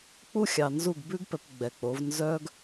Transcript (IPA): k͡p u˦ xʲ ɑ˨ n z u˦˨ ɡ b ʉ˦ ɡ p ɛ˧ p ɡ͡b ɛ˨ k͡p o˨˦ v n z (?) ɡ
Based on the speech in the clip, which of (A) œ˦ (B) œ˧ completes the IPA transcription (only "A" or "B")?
A